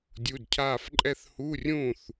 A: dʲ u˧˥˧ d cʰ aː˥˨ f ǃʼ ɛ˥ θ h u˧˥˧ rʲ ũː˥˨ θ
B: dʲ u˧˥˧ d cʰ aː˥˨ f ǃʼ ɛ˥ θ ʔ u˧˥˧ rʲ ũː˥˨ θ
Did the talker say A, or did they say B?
A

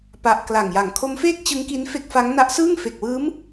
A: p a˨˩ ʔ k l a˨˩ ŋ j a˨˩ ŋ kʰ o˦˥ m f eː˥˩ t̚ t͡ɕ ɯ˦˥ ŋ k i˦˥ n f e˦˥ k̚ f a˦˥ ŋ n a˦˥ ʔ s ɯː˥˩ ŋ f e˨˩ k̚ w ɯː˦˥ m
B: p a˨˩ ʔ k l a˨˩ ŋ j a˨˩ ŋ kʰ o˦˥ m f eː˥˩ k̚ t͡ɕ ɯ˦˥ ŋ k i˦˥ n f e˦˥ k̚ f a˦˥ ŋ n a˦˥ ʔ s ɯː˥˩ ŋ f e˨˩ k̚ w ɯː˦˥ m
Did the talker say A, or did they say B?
B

